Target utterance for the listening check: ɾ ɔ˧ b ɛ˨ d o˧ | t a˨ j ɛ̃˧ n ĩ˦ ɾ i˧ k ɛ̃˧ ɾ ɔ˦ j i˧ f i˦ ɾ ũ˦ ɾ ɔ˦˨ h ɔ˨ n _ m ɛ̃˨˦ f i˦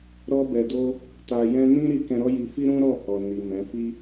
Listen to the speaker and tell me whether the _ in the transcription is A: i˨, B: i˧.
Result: A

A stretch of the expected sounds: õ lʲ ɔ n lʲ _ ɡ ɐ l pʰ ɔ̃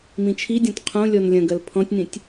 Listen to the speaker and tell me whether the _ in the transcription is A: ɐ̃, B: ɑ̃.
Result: A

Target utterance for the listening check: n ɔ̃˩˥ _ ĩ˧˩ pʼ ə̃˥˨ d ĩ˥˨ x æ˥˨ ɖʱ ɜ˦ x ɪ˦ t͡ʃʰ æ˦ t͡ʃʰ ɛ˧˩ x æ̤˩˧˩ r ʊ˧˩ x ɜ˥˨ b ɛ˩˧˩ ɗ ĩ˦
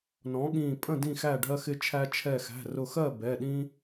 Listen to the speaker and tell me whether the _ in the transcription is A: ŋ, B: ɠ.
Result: B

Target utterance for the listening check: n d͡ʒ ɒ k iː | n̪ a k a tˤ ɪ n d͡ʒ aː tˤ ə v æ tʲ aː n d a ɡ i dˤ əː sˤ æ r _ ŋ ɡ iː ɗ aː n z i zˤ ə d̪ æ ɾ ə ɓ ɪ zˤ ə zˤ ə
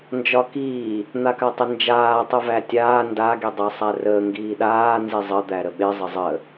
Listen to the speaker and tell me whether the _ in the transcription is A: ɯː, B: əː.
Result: B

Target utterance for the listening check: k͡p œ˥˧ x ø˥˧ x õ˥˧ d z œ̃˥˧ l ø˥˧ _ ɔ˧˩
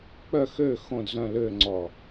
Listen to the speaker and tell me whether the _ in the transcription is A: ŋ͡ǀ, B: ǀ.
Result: A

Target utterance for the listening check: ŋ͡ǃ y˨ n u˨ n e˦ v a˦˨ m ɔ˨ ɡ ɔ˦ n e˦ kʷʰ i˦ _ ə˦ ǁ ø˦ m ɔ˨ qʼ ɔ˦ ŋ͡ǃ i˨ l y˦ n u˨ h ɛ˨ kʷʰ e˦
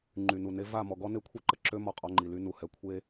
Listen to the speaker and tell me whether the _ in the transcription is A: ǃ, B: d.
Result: A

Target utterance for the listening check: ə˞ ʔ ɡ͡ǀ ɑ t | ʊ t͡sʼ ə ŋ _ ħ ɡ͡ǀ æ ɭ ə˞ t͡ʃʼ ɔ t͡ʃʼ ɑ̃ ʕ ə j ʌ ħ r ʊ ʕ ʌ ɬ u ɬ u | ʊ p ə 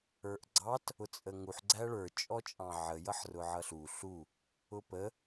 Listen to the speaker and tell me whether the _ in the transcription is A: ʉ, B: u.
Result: B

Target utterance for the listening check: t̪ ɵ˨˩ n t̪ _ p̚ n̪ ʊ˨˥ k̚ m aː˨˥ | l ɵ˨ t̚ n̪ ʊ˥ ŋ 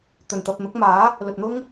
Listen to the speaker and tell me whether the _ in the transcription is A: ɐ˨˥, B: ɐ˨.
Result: B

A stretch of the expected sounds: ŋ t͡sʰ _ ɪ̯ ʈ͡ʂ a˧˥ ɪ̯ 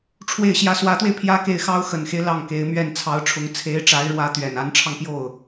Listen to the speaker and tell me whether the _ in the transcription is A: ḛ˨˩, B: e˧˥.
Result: B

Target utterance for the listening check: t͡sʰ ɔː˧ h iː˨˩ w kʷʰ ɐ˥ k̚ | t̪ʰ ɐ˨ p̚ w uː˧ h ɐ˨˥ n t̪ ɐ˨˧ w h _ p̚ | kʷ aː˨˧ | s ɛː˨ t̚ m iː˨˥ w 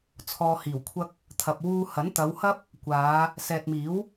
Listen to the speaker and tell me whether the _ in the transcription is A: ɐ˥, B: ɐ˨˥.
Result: A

